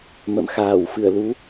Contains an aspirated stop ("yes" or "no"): no